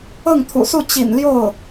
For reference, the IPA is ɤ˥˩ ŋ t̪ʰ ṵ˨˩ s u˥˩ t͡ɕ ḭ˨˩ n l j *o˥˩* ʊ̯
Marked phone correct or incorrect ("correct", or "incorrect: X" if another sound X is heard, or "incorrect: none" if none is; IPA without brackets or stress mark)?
correct